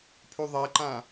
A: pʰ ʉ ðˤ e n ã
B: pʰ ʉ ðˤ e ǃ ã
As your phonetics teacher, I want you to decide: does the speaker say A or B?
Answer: B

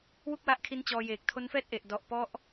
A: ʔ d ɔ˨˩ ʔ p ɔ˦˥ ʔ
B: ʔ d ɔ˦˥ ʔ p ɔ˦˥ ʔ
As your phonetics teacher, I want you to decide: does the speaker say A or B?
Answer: A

